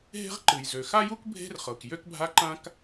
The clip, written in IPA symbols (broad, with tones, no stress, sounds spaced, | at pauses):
ɦ e̤˥ ʁ ǃ ɨ˩ j z ø˩ x a˥ j u˥ k bʱ e̤˥ r χ ɤ˩ k j ø˥ k bʱ a˥ ǃ ã˥ k